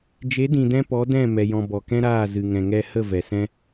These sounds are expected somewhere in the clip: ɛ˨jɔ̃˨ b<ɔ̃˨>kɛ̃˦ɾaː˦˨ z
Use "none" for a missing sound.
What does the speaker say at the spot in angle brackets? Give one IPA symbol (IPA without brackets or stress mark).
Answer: ɔ˨